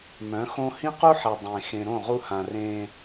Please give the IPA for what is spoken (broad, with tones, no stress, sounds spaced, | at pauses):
m œ̃˨˦ x õ˦ h ĩ˦ q u˦ ħ ɛ˨ dˤ ẽ˨ x ẽ˨ ɾ õ˦˨ ʁ u˦ h ã˨ r ẽ˦